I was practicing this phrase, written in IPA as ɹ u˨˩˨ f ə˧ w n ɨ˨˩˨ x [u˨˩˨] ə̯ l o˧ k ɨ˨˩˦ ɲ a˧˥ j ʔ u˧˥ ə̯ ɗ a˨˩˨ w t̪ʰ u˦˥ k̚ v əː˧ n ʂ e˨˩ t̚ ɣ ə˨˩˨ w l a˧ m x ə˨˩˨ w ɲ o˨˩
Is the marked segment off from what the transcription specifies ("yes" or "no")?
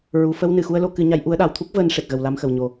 yes